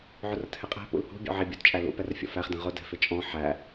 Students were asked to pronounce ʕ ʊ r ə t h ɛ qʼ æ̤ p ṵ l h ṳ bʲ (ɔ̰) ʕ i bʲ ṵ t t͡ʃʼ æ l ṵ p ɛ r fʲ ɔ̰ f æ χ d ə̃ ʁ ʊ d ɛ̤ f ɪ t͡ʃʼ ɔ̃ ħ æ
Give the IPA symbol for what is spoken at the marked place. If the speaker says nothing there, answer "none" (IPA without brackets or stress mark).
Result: ɔ̰